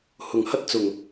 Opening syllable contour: low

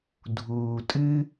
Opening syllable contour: low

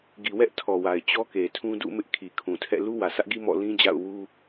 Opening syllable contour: low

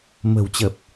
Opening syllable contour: low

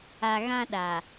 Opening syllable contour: low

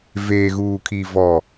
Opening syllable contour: low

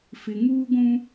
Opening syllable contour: low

